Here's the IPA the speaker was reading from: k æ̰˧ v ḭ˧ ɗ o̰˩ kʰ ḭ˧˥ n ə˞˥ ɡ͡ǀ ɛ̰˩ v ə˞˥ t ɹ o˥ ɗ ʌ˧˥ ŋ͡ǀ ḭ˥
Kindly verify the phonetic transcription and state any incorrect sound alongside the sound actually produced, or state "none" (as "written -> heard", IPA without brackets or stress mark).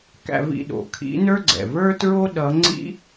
none